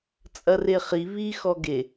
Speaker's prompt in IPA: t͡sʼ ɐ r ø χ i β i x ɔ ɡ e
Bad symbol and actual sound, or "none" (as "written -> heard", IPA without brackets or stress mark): ø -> e